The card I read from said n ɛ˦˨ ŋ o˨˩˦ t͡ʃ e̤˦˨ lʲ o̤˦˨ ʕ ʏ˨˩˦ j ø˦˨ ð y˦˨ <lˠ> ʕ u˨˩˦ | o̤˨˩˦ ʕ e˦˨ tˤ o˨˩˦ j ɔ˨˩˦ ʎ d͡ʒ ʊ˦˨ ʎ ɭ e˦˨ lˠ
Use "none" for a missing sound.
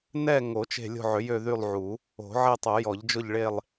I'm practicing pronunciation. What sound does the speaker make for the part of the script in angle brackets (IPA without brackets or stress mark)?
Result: lˠ